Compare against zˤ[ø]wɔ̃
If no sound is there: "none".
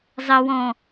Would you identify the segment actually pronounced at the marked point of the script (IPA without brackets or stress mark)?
ə